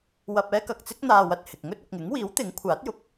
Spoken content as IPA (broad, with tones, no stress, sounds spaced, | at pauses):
w ɐ˧ p̚ ɛː˥ k ɐ˨ k̚ t͡s ɪ˥ k̚ n̪ aː˧ w ɐ˨ t̚ h ɪ˨ k̚ ŋ ɵ˥ t̚ ʊ˨ k̚ ŋ ɪ˨˥ ŋ w iː˨˥ w t̪ ɪ˨˥ ŋ kʷʰ aː˨˥ t̚ j ʊ˨ k̚